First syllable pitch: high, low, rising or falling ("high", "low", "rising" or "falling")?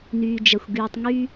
low